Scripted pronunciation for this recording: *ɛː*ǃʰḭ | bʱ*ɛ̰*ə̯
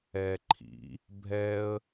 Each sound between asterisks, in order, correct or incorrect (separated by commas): correct, incorrect